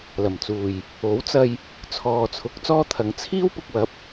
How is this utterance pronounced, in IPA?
l ɐ˨˩ m t͡s uː˨˩ j | o˨˥ w t͡s ɐ˧ j | t͡sʰ ɔː˨ t͡sʰ ʊ˨˥ k̚ t͡s ɔː˥ t̪ʰ ɐ˨˧ ŋ t͡sʰ iː˥ w p ʊ˨ k̚ w ɐ˨˥ p̚

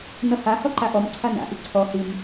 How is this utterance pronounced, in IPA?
n ʌ h a h ɔ ǃ a ʔ ɔ m ǀʰ a n a̰ ʔ i ǀʰ ɔ h i m

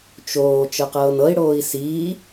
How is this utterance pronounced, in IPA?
t͡ʃ oː t͡ʃ ɤ q ɤː n ɤ i̯ ɽ oː i̯ s iː

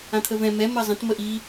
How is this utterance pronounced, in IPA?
ã t̪ʰ ə v ɛ̃ m ɛ m ɜ zˤ ə̃ t m ə ʔ i

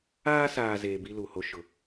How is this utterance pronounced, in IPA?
aː˦ s aː˨ z eː˨ b i˦ l u˨ h o˦ ʃ ʊ˨

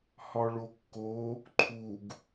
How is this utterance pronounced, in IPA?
h ɒ ɭ o kː o | ǃʰ u ɡ

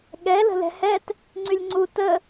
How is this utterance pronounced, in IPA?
ɠ ɛ l ə̤ l ɛ̤ h ɛ t | ŋ͡ǀ y lʲ ŋ͡ǀ u t ə

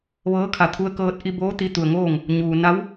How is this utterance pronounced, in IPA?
ʋ ɤː˧˥ kʰ a˧˩ t̪ʰ u˧ ə̯ k ɤː˧ t̚ ʔ i˧ b oː˧˥ t̪ i˧ t̪ u˩ ə̯ ŋ oː˥˨ ŋ | ɲ uː˩ n a˧˥ w

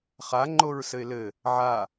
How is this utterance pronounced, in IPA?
χ a ŋ͡ǃ o ɹ s ɘ ɪ̯ l ɘ | ʕ a

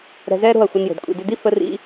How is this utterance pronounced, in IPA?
ɾ ɛ̤˧ z ɛː˦ ɾ o̤˦˨ ɐ̯ xʷ ʌ˧ n j o̤˨ d kʷʼ ḭ˨ d ʏ˧ d i˦ f ə˦ r ḭ˦

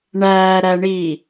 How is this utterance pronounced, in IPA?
ɳ æː ɾ æ ɳ iː

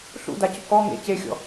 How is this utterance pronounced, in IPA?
ɬ ṵ d a c ʊ k ɔ ŋ ḛ c e xʲ ɔ̰

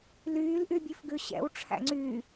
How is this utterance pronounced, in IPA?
l yː l ʔ y bʲ ʉ f ɡ ʉ ɕ ɛ̰ w ʈ͡ʂʰ æ̰ ŋ͡ǀ yː

